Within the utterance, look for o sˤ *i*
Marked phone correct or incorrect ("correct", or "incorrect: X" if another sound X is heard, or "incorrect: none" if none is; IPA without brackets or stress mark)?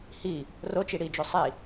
correct